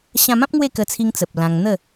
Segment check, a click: absent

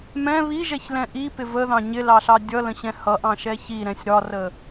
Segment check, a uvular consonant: absent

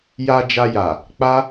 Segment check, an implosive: absent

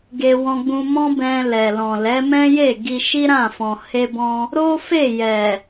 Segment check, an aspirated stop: absent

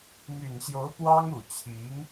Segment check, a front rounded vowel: present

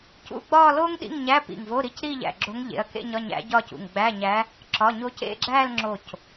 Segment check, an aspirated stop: absent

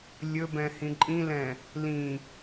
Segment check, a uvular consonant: absent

